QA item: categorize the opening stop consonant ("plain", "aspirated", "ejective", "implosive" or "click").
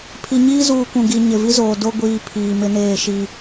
aspirated